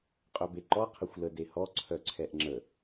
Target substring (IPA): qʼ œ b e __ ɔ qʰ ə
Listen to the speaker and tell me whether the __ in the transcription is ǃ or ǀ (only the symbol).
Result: ǃ